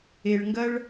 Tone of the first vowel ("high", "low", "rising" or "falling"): low